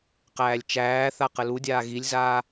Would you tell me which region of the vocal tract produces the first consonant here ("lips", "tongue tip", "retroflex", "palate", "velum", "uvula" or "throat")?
uvula